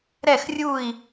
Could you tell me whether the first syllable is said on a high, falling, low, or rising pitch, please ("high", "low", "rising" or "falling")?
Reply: falling